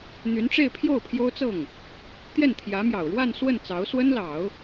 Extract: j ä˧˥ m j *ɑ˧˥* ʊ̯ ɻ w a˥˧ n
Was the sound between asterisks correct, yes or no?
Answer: no